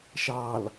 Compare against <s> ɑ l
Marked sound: incorrect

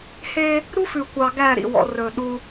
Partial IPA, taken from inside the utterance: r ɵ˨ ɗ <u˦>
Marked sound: correct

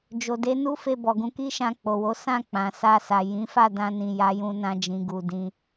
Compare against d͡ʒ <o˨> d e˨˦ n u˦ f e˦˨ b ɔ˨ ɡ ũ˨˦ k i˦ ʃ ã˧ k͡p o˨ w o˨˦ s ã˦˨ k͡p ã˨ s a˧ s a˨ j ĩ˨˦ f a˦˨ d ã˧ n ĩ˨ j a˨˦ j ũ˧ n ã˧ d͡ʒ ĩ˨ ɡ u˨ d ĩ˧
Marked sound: correct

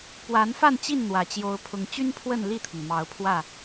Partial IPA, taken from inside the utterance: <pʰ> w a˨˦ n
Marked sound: incorrect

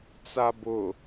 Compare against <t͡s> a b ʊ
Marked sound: correct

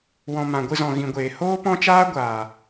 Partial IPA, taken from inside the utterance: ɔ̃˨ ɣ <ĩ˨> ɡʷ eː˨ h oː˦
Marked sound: correct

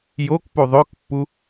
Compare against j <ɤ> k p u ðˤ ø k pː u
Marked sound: incorrect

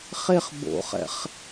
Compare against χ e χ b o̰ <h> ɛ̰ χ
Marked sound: incorrect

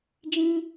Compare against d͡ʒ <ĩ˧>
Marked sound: correct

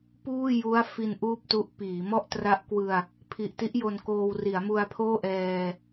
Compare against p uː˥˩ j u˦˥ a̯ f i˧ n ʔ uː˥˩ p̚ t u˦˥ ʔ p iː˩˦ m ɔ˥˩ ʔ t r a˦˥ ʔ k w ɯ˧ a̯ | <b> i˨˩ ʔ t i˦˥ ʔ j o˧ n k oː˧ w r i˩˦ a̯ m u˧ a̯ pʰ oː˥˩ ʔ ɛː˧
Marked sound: incorrect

